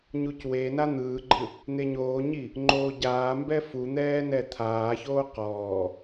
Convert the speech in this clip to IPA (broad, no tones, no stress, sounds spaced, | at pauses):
ɲ u c w e n a n̪ ɯː ɡ͡ǃ ɯ | n̪ e ɲ oː ɲ i | ŋ͡ǃ oː ɟ aː m b ɛ f u n̪ ɛː n ɛ t̪ʰ aː ç oː q ɔː